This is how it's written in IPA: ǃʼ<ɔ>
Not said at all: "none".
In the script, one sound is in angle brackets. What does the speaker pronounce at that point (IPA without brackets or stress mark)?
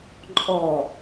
ɔ